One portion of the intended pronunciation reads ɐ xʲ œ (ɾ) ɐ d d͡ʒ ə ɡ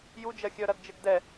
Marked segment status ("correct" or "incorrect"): correct